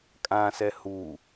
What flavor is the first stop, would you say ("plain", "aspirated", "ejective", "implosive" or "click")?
ejective